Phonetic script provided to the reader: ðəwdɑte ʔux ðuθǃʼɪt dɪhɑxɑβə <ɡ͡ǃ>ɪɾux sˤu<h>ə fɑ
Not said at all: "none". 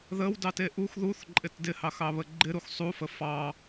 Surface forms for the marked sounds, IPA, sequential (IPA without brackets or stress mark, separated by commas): ɡ͡ǃ, f